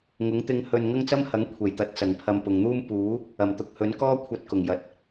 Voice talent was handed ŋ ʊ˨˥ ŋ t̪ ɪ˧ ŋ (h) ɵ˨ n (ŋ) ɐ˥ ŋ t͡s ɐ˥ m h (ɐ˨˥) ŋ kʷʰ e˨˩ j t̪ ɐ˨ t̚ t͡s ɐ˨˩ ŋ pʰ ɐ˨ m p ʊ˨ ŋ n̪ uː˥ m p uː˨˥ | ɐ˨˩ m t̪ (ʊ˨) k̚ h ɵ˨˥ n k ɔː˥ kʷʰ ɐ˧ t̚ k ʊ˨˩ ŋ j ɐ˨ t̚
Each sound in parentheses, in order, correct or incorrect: correct, correct, correct, correct

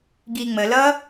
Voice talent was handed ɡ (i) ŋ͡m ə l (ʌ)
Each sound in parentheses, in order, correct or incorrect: correct, correct

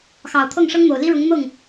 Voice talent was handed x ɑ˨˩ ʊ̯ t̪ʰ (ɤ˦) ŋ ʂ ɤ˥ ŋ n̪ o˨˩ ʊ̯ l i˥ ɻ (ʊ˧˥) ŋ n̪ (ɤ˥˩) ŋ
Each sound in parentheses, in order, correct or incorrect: incorrect, correct, correct

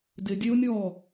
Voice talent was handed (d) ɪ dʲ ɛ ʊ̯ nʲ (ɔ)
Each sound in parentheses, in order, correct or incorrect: correct, correct

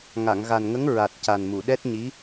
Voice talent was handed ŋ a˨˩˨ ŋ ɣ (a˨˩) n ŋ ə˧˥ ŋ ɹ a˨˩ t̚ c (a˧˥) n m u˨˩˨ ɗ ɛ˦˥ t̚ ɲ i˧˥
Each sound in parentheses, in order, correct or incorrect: correct, incorrect

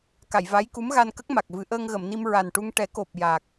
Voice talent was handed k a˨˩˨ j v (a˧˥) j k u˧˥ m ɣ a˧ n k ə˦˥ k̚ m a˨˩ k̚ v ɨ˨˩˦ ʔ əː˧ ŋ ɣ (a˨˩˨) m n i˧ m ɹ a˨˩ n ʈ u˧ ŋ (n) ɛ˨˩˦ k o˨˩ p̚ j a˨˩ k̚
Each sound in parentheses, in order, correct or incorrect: correct, incorrect, incorrect

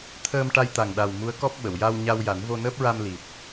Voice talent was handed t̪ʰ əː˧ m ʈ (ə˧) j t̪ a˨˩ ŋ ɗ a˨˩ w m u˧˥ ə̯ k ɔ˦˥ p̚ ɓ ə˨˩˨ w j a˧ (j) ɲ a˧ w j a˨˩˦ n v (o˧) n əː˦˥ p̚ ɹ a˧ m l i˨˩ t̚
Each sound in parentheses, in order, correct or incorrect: incorrect, incorrect, correct

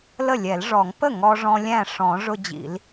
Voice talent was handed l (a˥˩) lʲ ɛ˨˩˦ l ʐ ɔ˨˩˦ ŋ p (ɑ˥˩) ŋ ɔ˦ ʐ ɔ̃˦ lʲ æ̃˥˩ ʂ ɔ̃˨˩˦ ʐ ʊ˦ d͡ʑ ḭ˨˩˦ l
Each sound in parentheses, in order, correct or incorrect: incorrect, incorrect

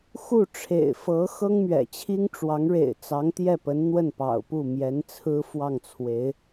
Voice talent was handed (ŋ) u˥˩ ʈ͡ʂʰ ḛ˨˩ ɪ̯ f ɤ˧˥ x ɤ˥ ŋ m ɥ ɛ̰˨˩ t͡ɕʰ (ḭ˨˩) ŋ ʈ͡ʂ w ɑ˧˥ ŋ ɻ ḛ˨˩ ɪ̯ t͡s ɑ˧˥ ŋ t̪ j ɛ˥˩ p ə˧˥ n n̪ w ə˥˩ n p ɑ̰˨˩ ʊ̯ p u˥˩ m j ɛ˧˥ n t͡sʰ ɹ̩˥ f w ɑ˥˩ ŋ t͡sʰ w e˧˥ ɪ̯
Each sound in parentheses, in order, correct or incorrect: incorrect, incorrect

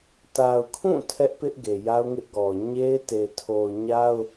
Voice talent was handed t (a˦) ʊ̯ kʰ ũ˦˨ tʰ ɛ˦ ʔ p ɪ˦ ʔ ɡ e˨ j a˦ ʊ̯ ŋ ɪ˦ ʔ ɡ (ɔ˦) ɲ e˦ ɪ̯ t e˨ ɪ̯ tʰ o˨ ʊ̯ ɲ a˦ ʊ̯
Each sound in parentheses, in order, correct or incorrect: incorrect, incorrect

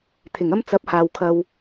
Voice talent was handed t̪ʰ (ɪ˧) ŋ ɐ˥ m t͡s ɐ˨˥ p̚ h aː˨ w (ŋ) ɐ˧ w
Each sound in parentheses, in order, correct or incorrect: incorrect, incorrect

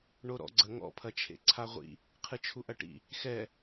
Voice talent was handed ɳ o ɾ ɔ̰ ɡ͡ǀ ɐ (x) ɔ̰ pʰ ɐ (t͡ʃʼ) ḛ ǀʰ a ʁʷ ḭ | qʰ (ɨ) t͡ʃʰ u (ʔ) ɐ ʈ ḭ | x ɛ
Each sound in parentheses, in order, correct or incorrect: incorrect, incorrect, correct, correct

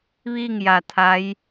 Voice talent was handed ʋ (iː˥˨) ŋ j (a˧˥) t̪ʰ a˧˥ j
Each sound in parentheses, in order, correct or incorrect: correct, incorrect

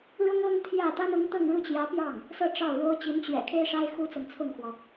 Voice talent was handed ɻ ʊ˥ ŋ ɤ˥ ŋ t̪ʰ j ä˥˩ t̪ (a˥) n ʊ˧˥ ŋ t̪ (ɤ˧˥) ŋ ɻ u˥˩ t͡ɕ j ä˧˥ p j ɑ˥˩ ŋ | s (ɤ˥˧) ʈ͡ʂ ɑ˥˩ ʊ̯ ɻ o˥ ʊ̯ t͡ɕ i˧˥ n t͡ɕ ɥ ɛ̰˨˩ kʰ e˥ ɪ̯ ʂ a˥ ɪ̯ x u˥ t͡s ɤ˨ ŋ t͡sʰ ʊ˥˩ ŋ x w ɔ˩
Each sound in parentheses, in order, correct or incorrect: correct, incorrect, correct

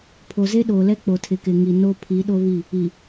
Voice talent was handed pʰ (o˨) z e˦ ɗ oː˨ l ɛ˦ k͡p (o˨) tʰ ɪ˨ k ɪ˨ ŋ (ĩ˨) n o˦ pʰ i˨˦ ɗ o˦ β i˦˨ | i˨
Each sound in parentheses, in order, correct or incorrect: correct, correct, incorrect

